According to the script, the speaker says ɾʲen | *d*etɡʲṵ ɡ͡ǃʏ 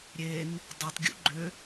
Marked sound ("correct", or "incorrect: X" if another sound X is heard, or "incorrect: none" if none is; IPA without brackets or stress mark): incorrect: dˤ